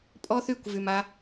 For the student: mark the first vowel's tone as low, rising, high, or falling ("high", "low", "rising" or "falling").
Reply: high